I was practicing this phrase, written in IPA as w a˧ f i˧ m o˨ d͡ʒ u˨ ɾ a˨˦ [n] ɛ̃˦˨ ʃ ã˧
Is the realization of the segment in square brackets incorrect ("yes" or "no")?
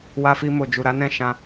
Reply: no